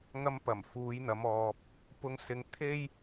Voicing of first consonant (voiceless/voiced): voiced